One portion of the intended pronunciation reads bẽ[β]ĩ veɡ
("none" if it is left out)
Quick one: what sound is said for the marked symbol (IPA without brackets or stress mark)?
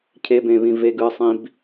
β